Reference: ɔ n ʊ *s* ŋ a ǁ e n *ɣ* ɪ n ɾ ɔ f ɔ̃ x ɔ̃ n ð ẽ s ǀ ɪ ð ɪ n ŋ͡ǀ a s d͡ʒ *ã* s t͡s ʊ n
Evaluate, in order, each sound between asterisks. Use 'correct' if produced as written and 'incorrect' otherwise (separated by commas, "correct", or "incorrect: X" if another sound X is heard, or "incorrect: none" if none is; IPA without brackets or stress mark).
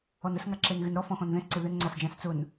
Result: correct, correct, correct